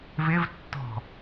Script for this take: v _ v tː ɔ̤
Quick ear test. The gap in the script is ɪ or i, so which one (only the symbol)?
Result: ɪ